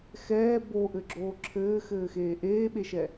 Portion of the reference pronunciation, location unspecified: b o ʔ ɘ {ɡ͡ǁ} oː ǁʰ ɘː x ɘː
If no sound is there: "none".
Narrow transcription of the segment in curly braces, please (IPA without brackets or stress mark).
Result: ɡ͡ǁ